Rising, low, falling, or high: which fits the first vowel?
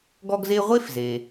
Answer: high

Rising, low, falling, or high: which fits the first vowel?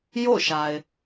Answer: falling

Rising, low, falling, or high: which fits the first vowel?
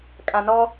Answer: low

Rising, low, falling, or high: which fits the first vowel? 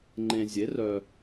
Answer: low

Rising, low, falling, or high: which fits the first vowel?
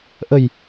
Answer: low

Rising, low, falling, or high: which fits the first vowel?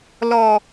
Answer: low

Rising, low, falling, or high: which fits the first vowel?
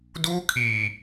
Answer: high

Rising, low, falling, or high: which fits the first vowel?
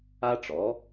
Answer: high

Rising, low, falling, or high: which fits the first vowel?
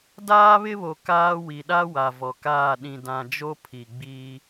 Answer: high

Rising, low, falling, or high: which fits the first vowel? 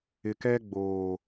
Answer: low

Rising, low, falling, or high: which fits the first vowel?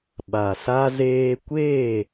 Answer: low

